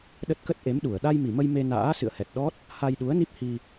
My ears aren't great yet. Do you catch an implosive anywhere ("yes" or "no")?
yes